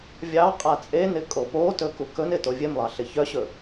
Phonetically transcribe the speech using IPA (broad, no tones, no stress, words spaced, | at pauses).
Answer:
vʲɑ qʼat͡sʼenɪ kʼopotɵ kukɵnɪ tovʲemlˠɑ ɬɪçœɕɵ